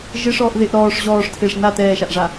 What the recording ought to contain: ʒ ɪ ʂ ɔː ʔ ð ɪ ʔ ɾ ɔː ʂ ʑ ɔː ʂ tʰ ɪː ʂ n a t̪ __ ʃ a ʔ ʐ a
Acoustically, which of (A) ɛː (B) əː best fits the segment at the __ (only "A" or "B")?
A